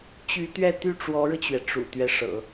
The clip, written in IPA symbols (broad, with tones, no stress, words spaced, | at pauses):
t͡ɕy˧˥t̪ɥɛ˥˧ t̪y˥˩ʈ͡ʂwɔ˧˥ɻɤ˧t͡ɕɥɛ˩ ʈ͡ʂṵ˨˩t̪ɥɛ˦ ʂɤ̰˨˩˦